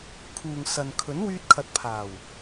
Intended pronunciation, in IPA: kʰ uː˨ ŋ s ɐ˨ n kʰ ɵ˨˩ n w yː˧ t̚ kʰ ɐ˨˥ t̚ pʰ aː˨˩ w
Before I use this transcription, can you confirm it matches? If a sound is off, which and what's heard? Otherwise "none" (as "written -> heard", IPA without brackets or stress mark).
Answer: ɵ˨˩ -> ɵ˨˥